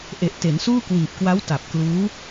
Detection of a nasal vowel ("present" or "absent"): absent